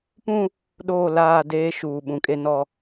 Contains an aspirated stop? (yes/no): no